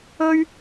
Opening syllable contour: high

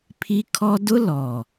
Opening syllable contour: high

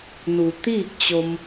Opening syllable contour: low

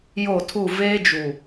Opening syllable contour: falling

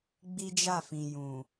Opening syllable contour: high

